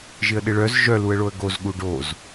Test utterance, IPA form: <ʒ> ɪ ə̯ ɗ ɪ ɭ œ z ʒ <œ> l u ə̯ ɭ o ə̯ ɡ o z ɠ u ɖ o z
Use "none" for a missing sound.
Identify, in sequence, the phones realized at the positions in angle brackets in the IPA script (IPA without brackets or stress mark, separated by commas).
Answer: ʒ, œ